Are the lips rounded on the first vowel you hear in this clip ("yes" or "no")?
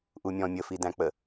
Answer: yes